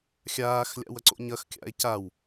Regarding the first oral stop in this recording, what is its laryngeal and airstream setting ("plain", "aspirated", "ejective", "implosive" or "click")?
click